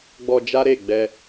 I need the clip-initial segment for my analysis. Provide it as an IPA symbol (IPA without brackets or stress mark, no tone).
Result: ɡ͡b